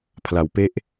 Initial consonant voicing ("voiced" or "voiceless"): voiceless